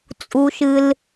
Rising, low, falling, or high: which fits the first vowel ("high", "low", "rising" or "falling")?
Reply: high